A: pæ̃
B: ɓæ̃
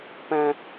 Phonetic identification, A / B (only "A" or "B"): A